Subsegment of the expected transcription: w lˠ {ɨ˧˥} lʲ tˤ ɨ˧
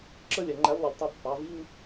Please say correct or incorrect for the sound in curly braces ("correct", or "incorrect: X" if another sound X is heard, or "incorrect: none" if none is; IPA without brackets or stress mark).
incorrect: ɨ˩